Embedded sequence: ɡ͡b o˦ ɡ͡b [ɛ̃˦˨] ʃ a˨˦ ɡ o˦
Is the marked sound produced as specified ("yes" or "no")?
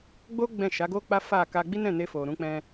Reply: yes